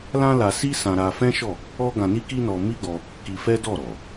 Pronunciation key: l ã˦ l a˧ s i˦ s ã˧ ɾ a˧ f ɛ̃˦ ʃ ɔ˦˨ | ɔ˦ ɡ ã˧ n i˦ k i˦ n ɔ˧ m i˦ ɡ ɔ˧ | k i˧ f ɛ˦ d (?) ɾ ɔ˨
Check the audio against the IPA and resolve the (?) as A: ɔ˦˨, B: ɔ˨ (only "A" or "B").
A